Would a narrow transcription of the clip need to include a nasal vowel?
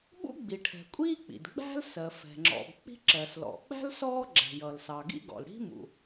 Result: no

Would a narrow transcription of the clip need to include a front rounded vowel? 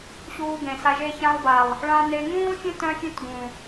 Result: yes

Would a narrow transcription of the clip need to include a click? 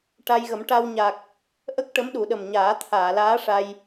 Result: no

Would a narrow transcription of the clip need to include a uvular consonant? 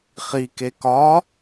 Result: yes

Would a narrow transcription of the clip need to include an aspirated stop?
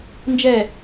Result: no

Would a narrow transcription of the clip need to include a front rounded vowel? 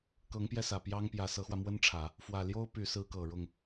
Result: yes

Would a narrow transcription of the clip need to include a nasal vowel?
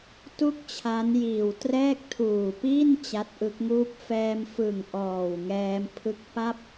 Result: no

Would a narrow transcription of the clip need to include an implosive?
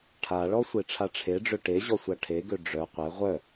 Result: no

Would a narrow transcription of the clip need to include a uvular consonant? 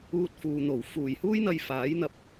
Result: no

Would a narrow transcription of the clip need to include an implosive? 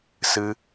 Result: no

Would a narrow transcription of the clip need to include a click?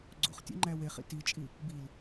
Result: yes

